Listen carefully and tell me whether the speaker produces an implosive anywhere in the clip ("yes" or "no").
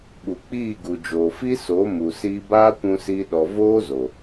yes